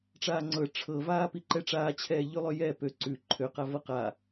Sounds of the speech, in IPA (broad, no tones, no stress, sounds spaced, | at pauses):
ʈ͡ʂ aː ŋ͡ǀ ɤ ʈ͡ʂʰ ɤ v aː p i ǃ ɛ ʈ͡ʂ aː t͡ɕʰ ɛː ʎ ʉ lˠ ø j ɛ p ø ǀ ʉ ǃʰ ø q a v ɤ q a